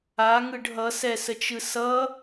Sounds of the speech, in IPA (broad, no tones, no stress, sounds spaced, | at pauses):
a ŋ ɯ ɖ ɦ ʌ s ɛ s ə t͡ʃ ɯ s ʌ